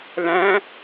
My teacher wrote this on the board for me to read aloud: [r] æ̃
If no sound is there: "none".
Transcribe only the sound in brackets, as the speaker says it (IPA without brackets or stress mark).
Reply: l